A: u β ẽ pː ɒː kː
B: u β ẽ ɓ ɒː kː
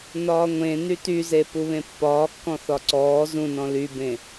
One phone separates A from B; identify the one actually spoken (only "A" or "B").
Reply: A